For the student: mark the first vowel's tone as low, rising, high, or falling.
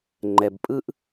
low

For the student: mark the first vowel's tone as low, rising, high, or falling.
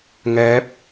rising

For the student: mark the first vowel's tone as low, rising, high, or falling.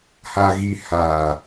low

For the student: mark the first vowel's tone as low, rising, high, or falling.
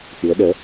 rising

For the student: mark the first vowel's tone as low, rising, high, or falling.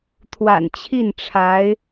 low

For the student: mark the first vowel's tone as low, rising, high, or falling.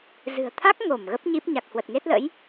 low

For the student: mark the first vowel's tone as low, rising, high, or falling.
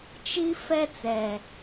high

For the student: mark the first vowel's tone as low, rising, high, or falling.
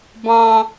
high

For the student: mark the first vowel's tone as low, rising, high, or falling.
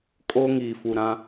high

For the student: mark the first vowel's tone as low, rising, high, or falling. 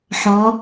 rising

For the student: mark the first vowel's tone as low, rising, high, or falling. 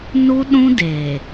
high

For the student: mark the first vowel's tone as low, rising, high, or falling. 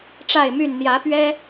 falling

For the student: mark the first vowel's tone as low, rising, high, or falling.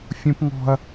high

